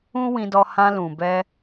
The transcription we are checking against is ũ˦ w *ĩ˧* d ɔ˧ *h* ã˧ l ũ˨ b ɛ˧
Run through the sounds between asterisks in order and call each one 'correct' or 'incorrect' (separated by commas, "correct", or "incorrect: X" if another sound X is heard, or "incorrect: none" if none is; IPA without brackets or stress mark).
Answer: correct, correct